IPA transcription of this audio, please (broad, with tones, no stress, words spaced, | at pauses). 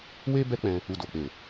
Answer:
we˦ bɛ˦k͡pɛ̃˧ | u˨do˨k͡pe˨